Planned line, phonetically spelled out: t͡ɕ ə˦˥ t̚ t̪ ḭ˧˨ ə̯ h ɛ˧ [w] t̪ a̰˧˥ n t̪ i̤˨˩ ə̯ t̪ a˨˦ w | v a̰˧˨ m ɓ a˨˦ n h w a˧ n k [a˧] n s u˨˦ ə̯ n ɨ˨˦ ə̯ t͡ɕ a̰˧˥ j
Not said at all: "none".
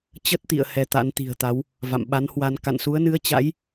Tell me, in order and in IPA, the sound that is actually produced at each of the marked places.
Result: none, a̰˧˨

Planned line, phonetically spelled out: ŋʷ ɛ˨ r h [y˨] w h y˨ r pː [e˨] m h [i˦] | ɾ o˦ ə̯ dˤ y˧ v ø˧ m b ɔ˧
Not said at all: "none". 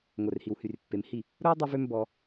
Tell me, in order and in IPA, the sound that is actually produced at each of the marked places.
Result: i˨, e˨, i˦˨

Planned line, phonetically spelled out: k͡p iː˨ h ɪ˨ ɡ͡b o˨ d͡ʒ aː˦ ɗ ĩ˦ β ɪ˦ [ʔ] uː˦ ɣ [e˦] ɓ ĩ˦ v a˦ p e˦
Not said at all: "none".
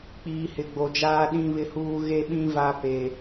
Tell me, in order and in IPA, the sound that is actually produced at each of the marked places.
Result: h, e˦

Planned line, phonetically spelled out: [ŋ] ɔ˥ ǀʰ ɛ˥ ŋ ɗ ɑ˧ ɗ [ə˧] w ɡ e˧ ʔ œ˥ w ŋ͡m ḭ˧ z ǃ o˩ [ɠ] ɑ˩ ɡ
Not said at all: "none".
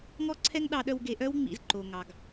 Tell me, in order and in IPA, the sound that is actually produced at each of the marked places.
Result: ŋ, œ˧, ŋ

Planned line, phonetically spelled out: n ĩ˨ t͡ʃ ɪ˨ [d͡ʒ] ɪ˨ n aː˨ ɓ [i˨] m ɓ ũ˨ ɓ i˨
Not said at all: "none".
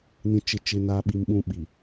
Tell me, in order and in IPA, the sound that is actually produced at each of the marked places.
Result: t͡ʃ, i˨

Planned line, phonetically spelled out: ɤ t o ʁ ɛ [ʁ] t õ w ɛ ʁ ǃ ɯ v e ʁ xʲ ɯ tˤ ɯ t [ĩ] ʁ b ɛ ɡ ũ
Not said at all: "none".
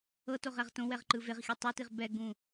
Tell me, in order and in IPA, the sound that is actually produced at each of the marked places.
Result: ʁ, i

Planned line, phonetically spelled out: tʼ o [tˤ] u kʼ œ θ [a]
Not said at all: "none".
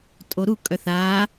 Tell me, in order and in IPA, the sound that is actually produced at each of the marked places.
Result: ɾ, a

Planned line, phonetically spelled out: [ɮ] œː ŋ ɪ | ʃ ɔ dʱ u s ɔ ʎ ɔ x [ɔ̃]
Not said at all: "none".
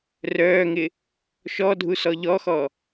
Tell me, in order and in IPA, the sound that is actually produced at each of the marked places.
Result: r, ɔ

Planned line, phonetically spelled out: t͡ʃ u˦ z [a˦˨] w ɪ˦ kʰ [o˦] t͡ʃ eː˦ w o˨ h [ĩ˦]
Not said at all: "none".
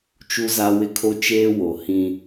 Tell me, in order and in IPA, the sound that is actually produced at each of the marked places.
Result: a˦, o˦, ĩ˦

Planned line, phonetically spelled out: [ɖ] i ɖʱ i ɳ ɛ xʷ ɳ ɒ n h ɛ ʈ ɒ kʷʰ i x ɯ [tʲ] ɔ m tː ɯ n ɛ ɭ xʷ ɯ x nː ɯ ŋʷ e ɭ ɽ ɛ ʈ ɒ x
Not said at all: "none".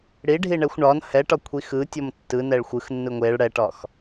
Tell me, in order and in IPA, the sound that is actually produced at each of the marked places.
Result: ɽ, tʲ

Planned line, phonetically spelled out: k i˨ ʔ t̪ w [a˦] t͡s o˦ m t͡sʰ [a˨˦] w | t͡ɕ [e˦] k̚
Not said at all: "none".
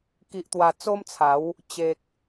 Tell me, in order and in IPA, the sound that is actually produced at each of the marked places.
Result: a˨˩, a˨˦, e˨

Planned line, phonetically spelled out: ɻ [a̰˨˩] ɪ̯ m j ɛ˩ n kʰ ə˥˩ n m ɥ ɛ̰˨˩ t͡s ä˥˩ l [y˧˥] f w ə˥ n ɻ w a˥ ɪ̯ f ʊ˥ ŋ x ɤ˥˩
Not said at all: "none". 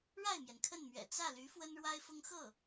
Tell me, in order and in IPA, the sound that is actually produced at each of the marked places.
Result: a˥˩, y˧˥

